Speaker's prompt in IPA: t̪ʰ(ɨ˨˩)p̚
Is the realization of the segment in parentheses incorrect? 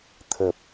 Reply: yes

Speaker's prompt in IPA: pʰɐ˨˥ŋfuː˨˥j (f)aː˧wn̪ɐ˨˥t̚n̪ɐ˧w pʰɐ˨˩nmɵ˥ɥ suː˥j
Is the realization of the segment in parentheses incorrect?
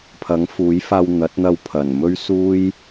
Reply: no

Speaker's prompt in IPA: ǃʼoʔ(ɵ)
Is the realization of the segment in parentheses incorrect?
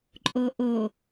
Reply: yes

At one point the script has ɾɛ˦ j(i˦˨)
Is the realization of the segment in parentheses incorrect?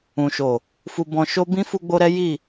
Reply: no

